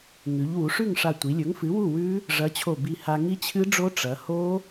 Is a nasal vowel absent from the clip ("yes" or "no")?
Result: yes